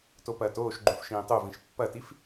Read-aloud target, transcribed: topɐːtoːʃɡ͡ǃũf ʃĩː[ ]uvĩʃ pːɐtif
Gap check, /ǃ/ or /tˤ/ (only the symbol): tˤ